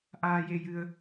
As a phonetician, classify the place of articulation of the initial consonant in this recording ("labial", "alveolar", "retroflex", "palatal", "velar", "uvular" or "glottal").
glottal